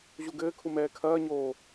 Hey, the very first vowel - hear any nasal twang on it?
no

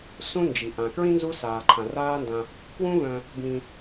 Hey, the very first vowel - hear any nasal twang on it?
yes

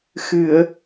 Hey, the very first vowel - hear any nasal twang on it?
no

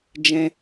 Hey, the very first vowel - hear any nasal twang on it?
yes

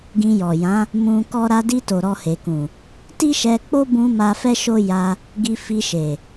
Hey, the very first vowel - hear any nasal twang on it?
yes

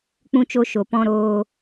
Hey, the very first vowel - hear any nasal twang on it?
yes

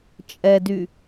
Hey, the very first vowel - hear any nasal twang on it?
no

